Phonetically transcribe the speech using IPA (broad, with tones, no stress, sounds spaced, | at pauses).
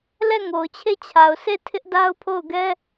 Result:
l ɛ˦˨ ŋ o˨ ʊ̯ t͡ɕʰ e˦˨ t͡ɕʰ a˨ ʊ̯ sʰ e˦˨ tʰ ɪ˦ ʔ d a˦ ʊ̯ pʰ o˦˨ ʊ̯ ɡ ɛ˦